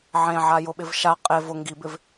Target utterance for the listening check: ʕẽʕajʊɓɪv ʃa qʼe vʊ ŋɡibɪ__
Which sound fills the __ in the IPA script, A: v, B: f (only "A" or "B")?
A